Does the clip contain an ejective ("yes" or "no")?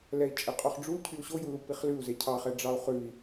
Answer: yes